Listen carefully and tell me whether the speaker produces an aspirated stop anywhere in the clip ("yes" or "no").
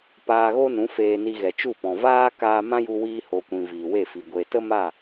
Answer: no